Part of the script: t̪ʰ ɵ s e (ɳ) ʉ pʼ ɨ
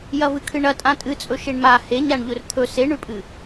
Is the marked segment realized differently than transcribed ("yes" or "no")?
no